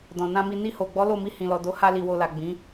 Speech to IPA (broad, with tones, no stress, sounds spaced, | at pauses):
d ɔ̃˨ n ã˧ m i˧ n i˧ h o˨ ɡ͡b ɔ˨˦ l o˦˨ m i˧ h ĩ˨ l ɔ˨ d o˨˦ h a˧ l i˨ w o˨ l a˨ ɡ͡b ĩ˨˦